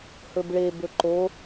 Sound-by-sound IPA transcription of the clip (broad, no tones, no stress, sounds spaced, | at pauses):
h ɵ b ɭ e b ɵ ǃ o